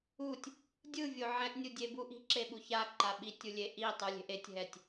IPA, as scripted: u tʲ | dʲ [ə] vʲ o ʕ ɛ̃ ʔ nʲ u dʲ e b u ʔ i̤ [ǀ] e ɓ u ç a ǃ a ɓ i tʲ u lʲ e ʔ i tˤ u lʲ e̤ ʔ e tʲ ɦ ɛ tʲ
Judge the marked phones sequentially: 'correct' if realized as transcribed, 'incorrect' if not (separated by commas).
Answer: incorrect, incorrect